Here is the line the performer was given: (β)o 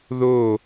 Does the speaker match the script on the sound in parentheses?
no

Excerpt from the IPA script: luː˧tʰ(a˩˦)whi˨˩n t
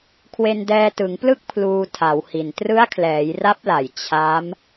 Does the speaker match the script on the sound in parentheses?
yes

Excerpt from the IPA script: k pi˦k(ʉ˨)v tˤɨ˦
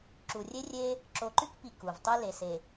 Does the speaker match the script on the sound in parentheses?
no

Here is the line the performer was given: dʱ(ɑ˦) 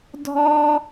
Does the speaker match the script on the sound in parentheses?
no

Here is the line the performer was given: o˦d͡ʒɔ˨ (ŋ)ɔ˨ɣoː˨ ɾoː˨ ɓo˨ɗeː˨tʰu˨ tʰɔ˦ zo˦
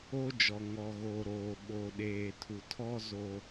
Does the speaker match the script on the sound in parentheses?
yes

